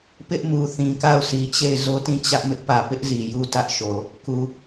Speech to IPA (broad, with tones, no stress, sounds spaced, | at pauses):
p ɪ˦ ʔ m u˨ θ ĩ˨ k a˦˨ ʊ̯ sʰ i˨ t͡ɕ e˦˨ ɪ̯ z o˦ t ĩ˦˨ t͡ɕ ä˦ ʔ m ɪ˦ ʔ p ä˨ p ɪ˦ ʔ z i˨ j u˦ t ä˦ ʔ ʃ o˨ | k u˨